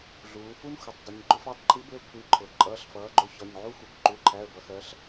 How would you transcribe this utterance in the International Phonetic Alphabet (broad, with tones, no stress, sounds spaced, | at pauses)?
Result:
ɮ uː˩˧ f u˦ n xʷ ɪ˩˧ tˤ dˤ ɪ˩˧ ɲ ɡ͡ǃ ʊ˦ f æ˨˥ tˤ ǃʰ i˨˥ b ɪ˨˥ ə̯ kʷʰ i˩˧˩ ǃʰ ʊ˩˧ ǃʼ ʌː˩˧˩ ɬ f ʌː˩˧ ɡ͡ǃ ʊ˨˥ ç ɒ˩˧˩ ɲ ʕ u˦ xʷ ʌ˩˧˩ kʷ ǃ u˩˧˩ ǃʰ æ˩˧˩ ə̯ b ʌ˩˧ x ɜ˩˧ ɬ